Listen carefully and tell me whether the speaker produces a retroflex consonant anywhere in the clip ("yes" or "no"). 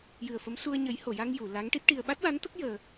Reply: yes